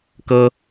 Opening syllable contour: high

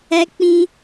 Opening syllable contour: high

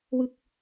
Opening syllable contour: falling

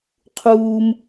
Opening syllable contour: high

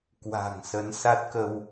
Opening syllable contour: low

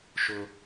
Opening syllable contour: high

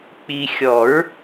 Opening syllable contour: low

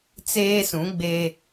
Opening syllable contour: high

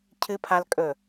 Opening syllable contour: high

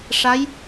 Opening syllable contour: rising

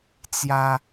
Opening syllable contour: high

